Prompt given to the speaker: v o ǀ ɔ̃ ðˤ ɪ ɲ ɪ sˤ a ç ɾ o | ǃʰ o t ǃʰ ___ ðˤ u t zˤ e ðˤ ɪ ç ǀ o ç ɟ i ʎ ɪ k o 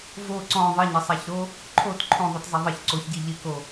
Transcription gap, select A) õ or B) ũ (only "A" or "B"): A